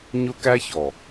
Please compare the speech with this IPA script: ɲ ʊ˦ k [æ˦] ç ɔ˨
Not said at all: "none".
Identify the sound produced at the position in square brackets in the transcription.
æ˦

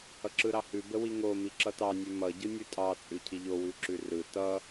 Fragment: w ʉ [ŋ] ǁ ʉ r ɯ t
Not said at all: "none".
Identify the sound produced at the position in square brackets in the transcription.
none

